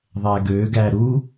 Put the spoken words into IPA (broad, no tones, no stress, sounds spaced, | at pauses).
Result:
ðˤ æ ɡ ø ɡ æ ɾ u